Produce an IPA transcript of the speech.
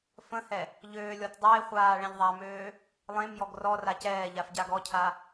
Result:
f ə̃ h ɛ | ʎ øː lʲ ɔ t dˤ e χʷ aː ɭ ɛ̃ ʎ ðˤ a m øː | lˠ ẽ m j ɔ ɡ r ɔ r a c ɛː ʎ a f ɟ a ɡ ɔ cʰ a

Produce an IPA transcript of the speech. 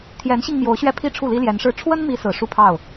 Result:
t̪ʰ j ɛ˧˥ n ɕ i˧ ŋ m j o˧˥ ʊ̯ ɕ ɥ ɛ˥˩ pʰ i˥ ʈ͡ʂʰ u˥˩ l i˥ l j ɛ˧˥ n ʂ ɻ̩˥˩ ʈ͡ʂʰ w ə˥ n m i˧˥ s ɹ̩˨˩ ʂ u˥˧ pʰ ɑ˥˩ ʊ̯

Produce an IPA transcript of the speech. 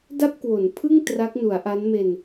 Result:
d a˥˩ p̚ k w o˩˦ n pʰ ɯ˥˩ ŋ t r a˦˥ k̚ n u˩˦ a̯ ʔ a˦˥ n m e˧ n

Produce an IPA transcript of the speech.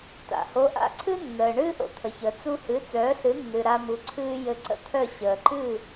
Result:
t a̰˩ h o˩˥ ʔ a̰˥˩ ǀʰ ɨ˥ nː əː˩ ɳ ɨː˥ ʔ o̰˧ t̪ʰ ə˩ ç əː˩ t͡s u˧ h ɨ˩˥ t͡s œː˩˥ ɬ ɨ˩˥ nː ɨ˩ ɾ a˧ m u˩˥ ǀʰ ɨː˥ j ɘ˧ ǀ ə̰˥ t̪ʰ œ˥˩ ɕ əː˩ ǃ ɨ˥˩

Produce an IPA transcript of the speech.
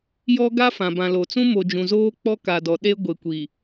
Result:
j ɔ˦ ɡ a˦ f ã˨ b ã˨ l o˨ t͡s ũ˦ m o˨ d͡ʒ ũ˨ z oː˦ k͡p ɔ˦ k a˨ d ɔ˨ ɗ e˦ ɡʷ e˨ kʷ i˨

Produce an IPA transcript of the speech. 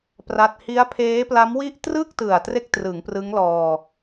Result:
p r a˥˩ t̚ h i˦˥ a̯ pʰ eː˦˥ p l a˦˥ m w i˥˩ ʔ t r ɯ˥˩ k̚ t ɯ˨˩ a̯ t r e˥˩ k̚ t r ɯ˩˦ ŋ p r ɯ˦˥ ŋ l ɔː˧

